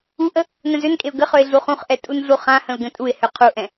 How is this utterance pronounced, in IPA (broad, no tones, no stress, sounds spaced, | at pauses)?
u ʔ ə | n ə̃ z ø n kʼ e ʊ̯ ɡ ə χ ø ɪ̯ ɮ u χ ũ χ ʔ ɛ tʼ u n ɮ u χ ã h ə̃ ʊ̯ ɡ ə̃ tʼ u ɪ̯ h ø qʰ u ʔ ɛ̃